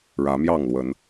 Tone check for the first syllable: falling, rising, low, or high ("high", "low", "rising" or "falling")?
rising